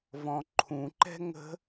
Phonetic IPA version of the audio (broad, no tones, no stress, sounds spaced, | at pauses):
v ɔ̃ ǃʰ ũ ǃ ɛ̤ ŋ ə̤